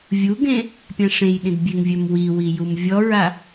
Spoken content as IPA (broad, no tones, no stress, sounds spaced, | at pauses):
vʲ u ɡ ẽ | pʲ ã ʂ ẽ j ɗ ĩ d bʲ e ŋ vʲ œ m w i w i j u m vʲ ɔ ɹ a